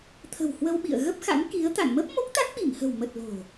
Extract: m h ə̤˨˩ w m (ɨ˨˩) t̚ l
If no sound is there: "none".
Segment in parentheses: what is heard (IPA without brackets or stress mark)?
ə˨˩